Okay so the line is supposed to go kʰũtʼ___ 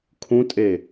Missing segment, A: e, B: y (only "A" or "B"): A